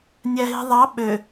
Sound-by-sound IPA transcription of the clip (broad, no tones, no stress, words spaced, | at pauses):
nʲæɦi̤ðˤɑ ɓø